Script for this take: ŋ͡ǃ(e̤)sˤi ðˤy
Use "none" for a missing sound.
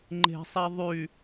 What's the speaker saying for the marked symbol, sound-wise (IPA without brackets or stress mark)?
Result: e̤